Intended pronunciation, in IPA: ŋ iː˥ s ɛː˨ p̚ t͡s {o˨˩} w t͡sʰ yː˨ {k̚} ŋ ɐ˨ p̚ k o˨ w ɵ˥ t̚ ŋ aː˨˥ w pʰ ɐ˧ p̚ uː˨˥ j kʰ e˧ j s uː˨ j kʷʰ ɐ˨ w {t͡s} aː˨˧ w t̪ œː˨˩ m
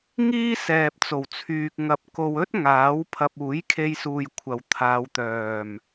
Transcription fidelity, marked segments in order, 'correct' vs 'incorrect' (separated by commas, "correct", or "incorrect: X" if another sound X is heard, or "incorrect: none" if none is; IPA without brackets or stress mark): correct, correct, incorrect: t̪ʰ